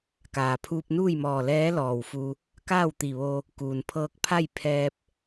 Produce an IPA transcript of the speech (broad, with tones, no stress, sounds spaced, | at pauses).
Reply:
k aː˩ pʰ uː˧ p̚ n uː˥˨ j m ɔː˧˩ l ɛː˧˥ l ɔː˧˩ w f u˧ | k aː˥˨ w t̪ i˧˩ ʋ o˧ | k uː˩ n pʰ ɤː˧ k̚ pʰ a˥˨ j pʰ ɛː˧ p̚